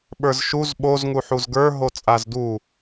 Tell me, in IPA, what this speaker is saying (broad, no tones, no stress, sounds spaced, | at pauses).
ɓ ə˞ z ʃ u z ɓ o z ŋ u ħ u z ɡ ə˞ ɦ o t͡sʼ a z d u